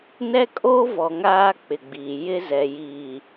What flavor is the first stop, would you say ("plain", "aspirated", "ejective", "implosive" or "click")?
ejective